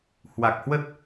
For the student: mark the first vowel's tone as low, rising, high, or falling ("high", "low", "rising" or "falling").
low